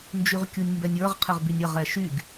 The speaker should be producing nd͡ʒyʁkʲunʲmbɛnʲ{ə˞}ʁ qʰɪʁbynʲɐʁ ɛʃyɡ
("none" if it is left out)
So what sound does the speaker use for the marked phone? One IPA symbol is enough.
ə˞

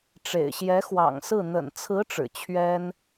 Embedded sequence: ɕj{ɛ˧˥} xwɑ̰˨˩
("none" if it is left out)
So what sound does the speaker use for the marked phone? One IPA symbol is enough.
ɛ˧˥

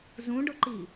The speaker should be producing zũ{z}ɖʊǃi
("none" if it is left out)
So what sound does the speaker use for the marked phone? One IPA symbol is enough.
none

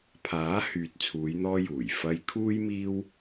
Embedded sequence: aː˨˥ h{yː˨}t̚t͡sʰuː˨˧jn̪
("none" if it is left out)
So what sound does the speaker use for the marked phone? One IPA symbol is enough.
yː˨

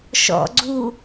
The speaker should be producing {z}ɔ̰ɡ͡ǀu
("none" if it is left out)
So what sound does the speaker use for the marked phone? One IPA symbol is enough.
ʃ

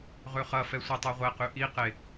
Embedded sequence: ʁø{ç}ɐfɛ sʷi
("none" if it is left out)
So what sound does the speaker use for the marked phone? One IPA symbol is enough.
χ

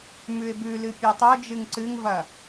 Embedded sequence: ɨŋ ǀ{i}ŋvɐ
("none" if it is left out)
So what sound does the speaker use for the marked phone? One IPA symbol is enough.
ɨ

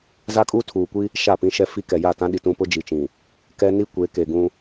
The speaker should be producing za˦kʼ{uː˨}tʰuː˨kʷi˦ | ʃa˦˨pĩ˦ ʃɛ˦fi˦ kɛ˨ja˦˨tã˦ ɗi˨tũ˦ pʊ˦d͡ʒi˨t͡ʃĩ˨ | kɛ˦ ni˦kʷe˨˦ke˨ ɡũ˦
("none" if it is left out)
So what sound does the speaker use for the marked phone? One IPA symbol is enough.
uː˦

